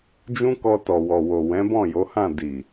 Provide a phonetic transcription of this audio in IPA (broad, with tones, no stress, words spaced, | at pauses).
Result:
d͡ʒũ˦kɔ˧ tɔ˨wɔ˨ wo˨wɛ̃˨˦ bɔ̃˦˨jo˨˦hã˦˨ di˨